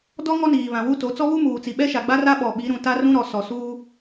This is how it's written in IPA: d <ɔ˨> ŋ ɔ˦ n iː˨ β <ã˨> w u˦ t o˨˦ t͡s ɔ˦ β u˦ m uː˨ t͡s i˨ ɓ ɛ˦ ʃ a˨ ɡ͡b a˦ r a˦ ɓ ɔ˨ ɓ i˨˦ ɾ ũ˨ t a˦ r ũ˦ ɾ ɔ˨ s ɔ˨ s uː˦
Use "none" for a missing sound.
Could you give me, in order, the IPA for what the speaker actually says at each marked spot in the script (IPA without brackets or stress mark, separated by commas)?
ɔ˦, ã˨